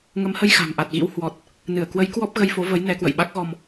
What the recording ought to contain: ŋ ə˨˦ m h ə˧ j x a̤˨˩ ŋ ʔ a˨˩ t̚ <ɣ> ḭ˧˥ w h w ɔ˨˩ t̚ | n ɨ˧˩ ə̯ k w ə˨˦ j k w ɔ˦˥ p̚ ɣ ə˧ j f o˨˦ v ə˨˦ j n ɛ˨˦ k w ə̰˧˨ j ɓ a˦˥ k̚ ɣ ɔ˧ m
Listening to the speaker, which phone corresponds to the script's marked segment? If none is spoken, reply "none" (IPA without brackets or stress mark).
ɣ